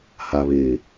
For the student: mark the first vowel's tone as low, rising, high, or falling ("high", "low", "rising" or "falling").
low